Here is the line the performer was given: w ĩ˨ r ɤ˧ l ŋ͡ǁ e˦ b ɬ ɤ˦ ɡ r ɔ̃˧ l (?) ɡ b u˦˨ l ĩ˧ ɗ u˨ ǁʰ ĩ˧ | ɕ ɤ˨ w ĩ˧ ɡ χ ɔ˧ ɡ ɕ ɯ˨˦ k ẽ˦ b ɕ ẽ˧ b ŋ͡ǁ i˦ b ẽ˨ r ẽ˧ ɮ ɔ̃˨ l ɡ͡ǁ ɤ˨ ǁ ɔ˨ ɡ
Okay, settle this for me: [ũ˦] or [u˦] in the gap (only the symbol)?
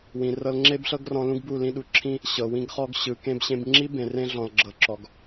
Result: ũ˦